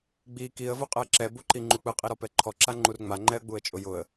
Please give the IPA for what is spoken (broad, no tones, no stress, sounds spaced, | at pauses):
ɡ͡b i k i ə̯ v u qʼ ɛ ǁ ɛ b u ǃ i ŋ͡ǃ u k͡p ɯ qʼ i ɾ ɔ p ɛ ǃʰ ɔ ǁ a ŋ͡ǃ u r ŋ͡m a ŋ͡ǃ ɛ ə̯ ɡ͡b u ə̯ t͡ʃʼ ʊ j ʊ ə̯